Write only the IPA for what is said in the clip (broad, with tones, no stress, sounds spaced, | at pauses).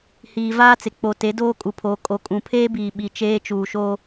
h iː˨ v aː˦ t͡s ɪ˨ k͡p o˨ t e˨˦ d oː˦ kʼ u˨ pʰ oː˨ kʼ o˨ kʼ ũ˨ pʰ eː˦ b iː˨ ɓ i˨ t͡ʃ eː˦ t͡ʃ uː˨ ʃ o˦